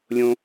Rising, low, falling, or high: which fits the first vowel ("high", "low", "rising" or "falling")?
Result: high